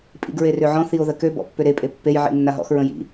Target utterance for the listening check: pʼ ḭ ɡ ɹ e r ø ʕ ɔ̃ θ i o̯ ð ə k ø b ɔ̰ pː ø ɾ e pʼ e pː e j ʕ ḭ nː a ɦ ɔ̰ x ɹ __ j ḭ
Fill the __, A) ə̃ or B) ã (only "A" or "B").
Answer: A